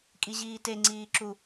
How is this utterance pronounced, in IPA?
kʼ i ʑ iː t e ŋ͡ǀ iː ǁ u

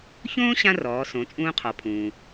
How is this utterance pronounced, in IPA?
ç õː˥ ɕ ã˥ r ɔː˩˧ s õ˩˧ t͡sʼ ũː˧ qʰ ɔ˩˧ pʰ ũː˩

